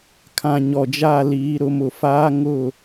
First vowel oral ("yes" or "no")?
no